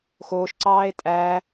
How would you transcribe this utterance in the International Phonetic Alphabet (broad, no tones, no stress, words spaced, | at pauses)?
xoːʃ ǀɑːe̯tʼæ